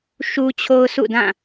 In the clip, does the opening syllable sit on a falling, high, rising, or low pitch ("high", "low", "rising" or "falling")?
high